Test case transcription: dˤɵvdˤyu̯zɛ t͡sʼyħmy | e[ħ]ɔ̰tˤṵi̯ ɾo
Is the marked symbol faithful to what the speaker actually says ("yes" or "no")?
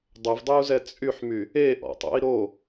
no